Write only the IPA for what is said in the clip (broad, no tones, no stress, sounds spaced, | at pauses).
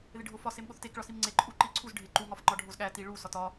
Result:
ð e ɖʱ o f ɒ s e m ɠ o θ t e k ɭ ɒ s i m ŋ͡ǀ e ǃʼ u ǃ i ǀʰ u z ɖʱ e ǃ u ŋ ɒ f ŋ͡ǃ ɒ ɖʱ o z ɠ æ t i ɭ u s ɒ t ɒ